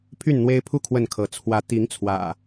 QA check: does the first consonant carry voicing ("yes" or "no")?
no